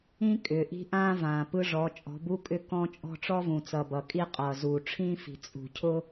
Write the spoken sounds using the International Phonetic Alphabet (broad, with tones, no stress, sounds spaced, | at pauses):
ĩ˦ kʼ ʏ˨ ʔ i̤˦ ʔ ãː˦ v ãː˨ p ɯ˦ ʐ ɔ˨˦ t͡ʃʼ ɔ̤˨˦ b u˦ kʼ ʏ˦ k ɔ̃˦ t͡ʃʼ ɔ̤˦ ʈ͡ʂ ɔ˦ v ũ˨ t͡s ʌ˨ b ʌ˨ kʼ i˦ qʼ ʌː˨ z uː˨ ʈ͡ʂʰ ĩː˦ f i̤˨ t͡sʼ ṳ˨ cʰ ʊ˦